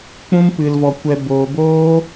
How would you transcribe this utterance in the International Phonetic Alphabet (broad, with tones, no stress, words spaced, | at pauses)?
k͡pũ˦mpɨ˧lvɔ˧kʷɛ˧ boː˧boː˦